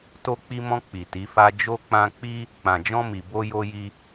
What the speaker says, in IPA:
t o˧ k͡p i˧ m ɔ̃˧ k͡p i˨ t i˨˦ f a˦ d͡ʒ o˦ k͡p ã˧ k͡p i˦ | k͡p ã˨ d͡ʒ ɔ̃˧ m i˨ b o˧ j o˧ j i˧

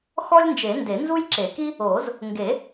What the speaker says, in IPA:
x ɔ˥ lʲ n d͡ʒ e˨˩˦ n d e˨˩˦ n z u˥ j ǁ e˨˩˦ k i˥ | oː˨˩˦ z | ŋ ɡ e˨˩˦

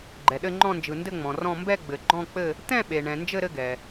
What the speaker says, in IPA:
ɡ͡ǃ ɛ˩ ɗ ɘ˦˨ ŋ͡ǃ ɔ̃˦˨ n d͡ʒ ɯ˩ n d ɘ˦˨ ŋ͡m ɔ̃˩ r ɔ̃˦˨ m b ɛ˦˨ ɡ͡b ɘ˩ ɡ͡ǃ ɔ̃˦˨ k͡p ɘ˦˨ | t̪ ɛ̃˦˨ ɓ e˩ ɳ ɛ̃˩ n d͡ʒ ɘ˦˨ ɾ ɘ˦˨ ɡ ɛ˩

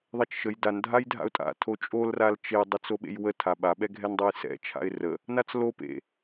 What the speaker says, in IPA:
ðˤ ɛ t͡ʃ ʃ ə j d a n dʱ a j dʱ a̰ ʊ̯ tʼ a̰ tʰ o t͡ʃʼ o l r a l t͡ʃ e j dˤ ɛ t͡s o ɓ ḛ j w ə tʰ a ɓ a ɓ ɛ ɡʱ ɛ n dˤ a j s ɛ̰ t͡ʃʰ a̰ ɪ̯ r ə | n a t͡s l o p ḛ

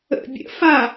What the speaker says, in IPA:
ə̰ bʲ ə̰ f a

